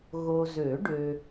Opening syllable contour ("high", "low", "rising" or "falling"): low